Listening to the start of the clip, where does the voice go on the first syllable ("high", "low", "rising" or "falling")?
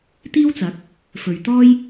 high